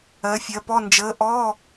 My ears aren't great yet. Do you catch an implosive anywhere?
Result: no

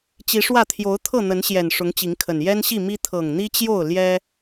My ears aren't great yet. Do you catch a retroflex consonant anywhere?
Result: yes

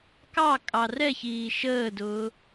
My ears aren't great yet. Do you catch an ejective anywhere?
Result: yes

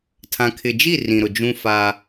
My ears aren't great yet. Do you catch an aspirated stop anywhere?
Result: yes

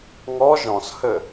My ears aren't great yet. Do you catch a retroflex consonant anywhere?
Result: no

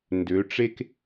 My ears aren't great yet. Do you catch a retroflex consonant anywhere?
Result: yes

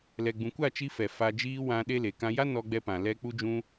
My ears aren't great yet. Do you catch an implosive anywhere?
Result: yes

